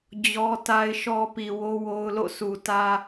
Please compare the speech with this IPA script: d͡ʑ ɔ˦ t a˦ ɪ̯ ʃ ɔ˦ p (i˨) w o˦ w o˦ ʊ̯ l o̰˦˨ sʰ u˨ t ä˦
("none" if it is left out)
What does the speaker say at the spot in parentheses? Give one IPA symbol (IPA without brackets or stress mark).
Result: i˨